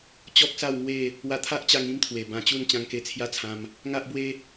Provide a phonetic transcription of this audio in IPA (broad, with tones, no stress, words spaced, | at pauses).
t͡ɕɔ˦k̚sa˥˧wŋwe˥˧ | wa˧t̪ʰa˦ʔt͡ɕa˧ŋ ĩ˦mt̪ʰwe˨˩ bã˧t͡ɕu˥˧n t͡ɕã˧ŋke˧t͡sʰja˥˧t͡sʰã˧m | ŋa˦ʔbwe˦